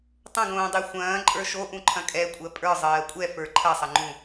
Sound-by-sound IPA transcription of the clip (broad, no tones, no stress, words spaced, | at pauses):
tˤə̃ɡõːdˤe xʷɐ̃ː ǃʼə˞ʃoʔũ ǃʰɐ̃kʼɛkʷʼɜ pʼə˞ zˤɜːkʷʼɛ fə˞ǃʰɐsˤɐŋ͡ǃũ